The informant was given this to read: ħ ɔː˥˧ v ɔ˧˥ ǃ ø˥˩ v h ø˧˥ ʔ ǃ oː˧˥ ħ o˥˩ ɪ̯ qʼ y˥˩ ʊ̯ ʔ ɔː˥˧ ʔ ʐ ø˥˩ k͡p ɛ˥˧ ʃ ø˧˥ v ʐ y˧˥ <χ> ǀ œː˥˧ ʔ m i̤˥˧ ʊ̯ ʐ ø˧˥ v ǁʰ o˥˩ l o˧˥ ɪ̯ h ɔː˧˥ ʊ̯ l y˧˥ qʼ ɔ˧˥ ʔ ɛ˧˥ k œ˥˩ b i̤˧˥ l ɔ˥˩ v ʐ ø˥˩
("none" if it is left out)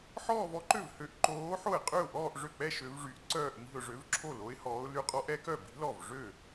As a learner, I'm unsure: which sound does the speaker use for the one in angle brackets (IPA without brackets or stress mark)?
ʔ